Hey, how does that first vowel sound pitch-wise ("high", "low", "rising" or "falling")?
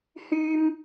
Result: high